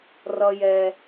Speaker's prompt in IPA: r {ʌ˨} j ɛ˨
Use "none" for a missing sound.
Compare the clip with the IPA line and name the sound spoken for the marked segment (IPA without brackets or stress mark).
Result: ʌ˨